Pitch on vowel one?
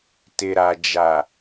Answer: low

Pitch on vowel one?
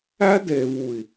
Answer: high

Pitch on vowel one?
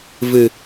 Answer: low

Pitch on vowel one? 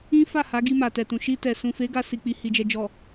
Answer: high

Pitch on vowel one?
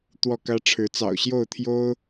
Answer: falling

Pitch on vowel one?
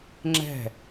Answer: falling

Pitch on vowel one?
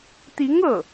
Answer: rising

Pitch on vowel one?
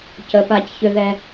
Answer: low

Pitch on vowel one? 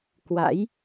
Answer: rising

